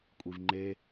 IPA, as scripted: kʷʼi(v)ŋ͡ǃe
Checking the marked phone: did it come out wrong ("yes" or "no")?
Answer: no